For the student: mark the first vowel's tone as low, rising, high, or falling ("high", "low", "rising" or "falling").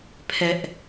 high